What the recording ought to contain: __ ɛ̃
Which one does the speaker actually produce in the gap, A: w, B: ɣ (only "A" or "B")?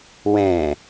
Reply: A